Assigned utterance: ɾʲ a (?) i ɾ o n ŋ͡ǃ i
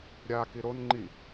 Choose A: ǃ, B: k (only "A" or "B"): B